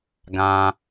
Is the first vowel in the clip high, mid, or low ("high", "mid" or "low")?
low